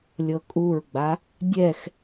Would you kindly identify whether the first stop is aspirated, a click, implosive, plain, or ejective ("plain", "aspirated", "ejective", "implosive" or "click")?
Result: ejective